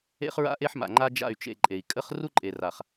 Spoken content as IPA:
ḛ˦χɹa̰˦ʔe˦ħma̰˨ ŋ͡ǃa˦ d͡ʒa̰˦˨y̯t͡ʃḛ˦˨ ǃʼe˨i̯ kʼə˦χ ru˦ǃʼe˨ ra˨χ

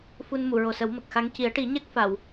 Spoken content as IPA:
fu˧nmu˨˩˨ɹo˨˩sə˨˩˦w mə˨˩k̚xa˧˥ŋ ci˨˩˦ə̯ʈi˨˩˦ɲɛ˦˥k̚ fa˨˩˨w

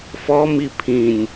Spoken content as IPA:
fɔmi pʰĩnʲ

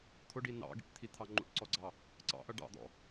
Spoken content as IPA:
t̪ʰʊɖi nɑ̰ɡḭʈt̪ʰit̪ʰɑ ŋ͡ǃṵʈǀɔɡ͡ǀɑ | ǀɑ̰ʔʌ ɖɑ̰d̪ɔ̰

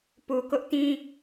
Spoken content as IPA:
pu˨kʊ˦ʔtĩ˦

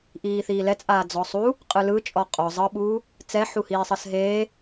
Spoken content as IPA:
ʔiːθiːlɛt͡sʼaː d͡zɔsˤu | qʼɯlɯt͡ʃʼɔ qʼɔ zˤɤɓuː | t͡sɛħu hiːsˤɤsɦeː

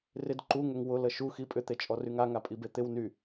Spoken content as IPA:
rɪd ǃuŋʏŋ wʊlə ʃuxi pʼʏt̪et͡ʃʼɔryŋ aŋapʼibe t̪ɪw ny

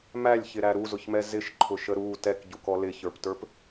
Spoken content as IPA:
mælʲçɪɾæ ɾuzʊçmɛ zɪʃǃʰʊʃə ɾu tɛkɟukɔ lɪçə˞ptə˞p

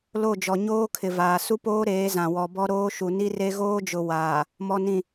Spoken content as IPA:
lo˦˨d͡ʒɔ˨ ɲoː˦kʰɪ˨vaː˨ su˦poː˦ɾeː˨˦ zã˨ wɔ˨bɔ˦ɾoː˦ ʃu˨ni˦re˦ ɣoː˦d͡ʒʊ˨ waː˨ | mɔ˨nĩ˨

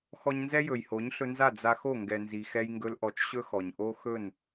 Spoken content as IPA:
xɔ˧ɲnzɛ˦jɵ˨jho˨˦ɲ ɬɵ˧nza˦˨ d͡za˧xo˦˨ ŋɡɛ˨nzi˨ xɛ˧jŋɡɵ˧lʔɔ˨˦t͡ʃ ɕɵ˦xɔ˨ɲʔo˦ xɵ˦˨n

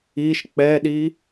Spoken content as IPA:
iʃ k͡pɛɗi

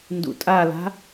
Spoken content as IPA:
ndṵtʼala̤

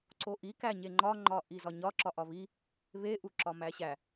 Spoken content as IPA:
ǀoʔi kæɲeŋ͡ǃɒ ŋ͡ǃɒʔizɒɲɒ ǁɒʔɒβi | βe ʔuǁɒmæɕæ

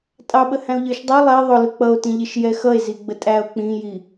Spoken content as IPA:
tʼɑɓə hæ̃o̯ʎə˞ʃdˤu lˠɛ ðˤʊlʊ k͡pʌo̯tĩʎɪʃ jɛxʌe̯ ziɡ͡bətʼæo̯ k͡pĩji

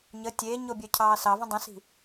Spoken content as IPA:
ɲə tʲeːɲobʲœ cʰɑːsɑvə̃ dˤə̃si̤

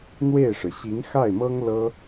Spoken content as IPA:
n̪we˥˩ɪ̯ʂɻ̩˩ ɕi˧˥ŋxa˥˩ɪ̯mɤ˥ŋ lɤ˥

